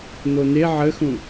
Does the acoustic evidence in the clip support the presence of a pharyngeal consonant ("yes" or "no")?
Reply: yes